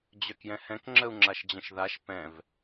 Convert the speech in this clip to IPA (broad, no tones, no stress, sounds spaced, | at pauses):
d͡ʑ œ k j ɛ̃ h ɛ̃ k ŋ͡ǁ ə u̯ ŋ͡ǁ a ʃ d͡ʑ ə̃ ʃ ð a ʃ p ɛ̃ v